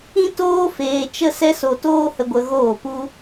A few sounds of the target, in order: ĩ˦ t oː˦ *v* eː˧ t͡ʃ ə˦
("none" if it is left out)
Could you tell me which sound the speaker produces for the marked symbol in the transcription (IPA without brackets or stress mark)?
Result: f